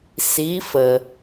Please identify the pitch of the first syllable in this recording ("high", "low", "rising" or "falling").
rising